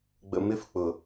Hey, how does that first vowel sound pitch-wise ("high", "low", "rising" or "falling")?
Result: low